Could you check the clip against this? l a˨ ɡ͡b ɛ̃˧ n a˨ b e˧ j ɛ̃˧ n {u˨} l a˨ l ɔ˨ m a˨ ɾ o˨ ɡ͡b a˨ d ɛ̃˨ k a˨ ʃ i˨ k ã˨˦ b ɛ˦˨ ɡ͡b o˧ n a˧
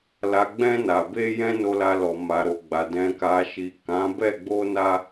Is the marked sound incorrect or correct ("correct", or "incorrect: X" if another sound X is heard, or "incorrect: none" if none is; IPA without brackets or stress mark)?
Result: incorrect: o˨